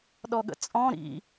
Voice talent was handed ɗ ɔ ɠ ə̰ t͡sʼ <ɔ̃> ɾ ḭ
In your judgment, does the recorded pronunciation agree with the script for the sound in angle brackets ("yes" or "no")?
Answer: yes